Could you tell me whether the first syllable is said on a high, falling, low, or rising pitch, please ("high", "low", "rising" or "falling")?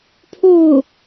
falling